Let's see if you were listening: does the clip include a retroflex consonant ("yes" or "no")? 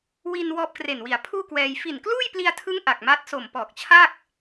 no